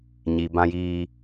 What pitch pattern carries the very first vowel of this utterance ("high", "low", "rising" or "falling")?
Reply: low